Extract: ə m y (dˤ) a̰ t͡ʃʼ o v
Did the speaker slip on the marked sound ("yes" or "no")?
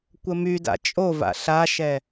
yes